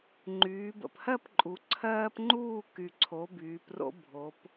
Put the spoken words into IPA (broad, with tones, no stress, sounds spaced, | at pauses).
ŋ͡ǃ yː˩˧ b ə̰˨˩ p h ɜ˥˨ p ǃʼ u˩˧ ǀʰ ɜː˦ p ŋ͡ǃ uː˥˨ k y˨˩ ǀʰ o˩˧ b yː˩˧ p r o̰˦ bʱ o˩˧ p